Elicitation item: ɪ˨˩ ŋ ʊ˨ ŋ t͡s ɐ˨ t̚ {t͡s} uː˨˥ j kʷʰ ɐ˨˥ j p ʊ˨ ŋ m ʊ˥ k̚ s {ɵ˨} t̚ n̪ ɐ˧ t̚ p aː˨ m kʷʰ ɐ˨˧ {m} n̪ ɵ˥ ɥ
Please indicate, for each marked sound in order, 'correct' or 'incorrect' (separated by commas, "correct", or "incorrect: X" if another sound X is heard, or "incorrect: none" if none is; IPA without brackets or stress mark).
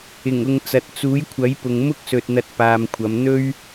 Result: correct, correct, correct